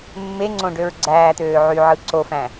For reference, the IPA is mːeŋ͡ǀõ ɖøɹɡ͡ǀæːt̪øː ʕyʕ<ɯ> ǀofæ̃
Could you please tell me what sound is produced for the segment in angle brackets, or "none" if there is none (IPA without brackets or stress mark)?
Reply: ɯ